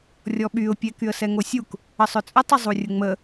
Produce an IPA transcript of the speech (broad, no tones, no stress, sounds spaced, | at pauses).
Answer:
rʲ ɔ ɓ y ʊ̯ pʲ ɛ k y ə̯ s ɛ ŋ o sʲ u k | ə sˤ œ t͡sʼ ə tˤ ə zˤ u rʲ ə ŋ͡m ə